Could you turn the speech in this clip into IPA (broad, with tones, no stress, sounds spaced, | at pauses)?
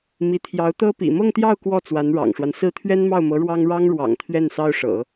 m i˧˥ t̪ʰ j ɑ˧˥ ʊ̯ t̪ ɤ˥ p ḭ˨˩ m ɤ˥˧ ŋ t̪ j ɑ˥˧ ʊ̯ k w ɔ˥˩ t͡s w a˧˥ n ɻ ɑ̰˨˩ ŋ ʂ w a˦ n s ɹ̩˥˩ t̪ʰ ɥ ɛ˥ n m ɑ˥˩ ʊ̯ m ɤ˧˥ ɻ w ɑ˥ ŋ ɻ ɑ˥ ŋ ɻ w ɑ̰˨˩ ŋ t̪ʰ ɥ ɛ˥˩ n s ɑ˥ ʊ̯ ʂ ɤ̰˨˩˦